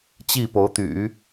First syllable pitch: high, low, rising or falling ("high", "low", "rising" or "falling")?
falling